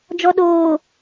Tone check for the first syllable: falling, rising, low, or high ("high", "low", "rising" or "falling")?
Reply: low